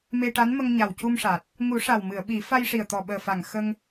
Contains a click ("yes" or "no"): no